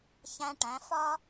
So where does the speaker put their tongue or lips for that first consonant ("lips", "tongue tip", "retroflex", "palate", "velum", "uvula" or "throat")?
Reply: palate